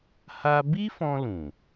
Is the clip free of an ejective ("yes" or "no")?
yes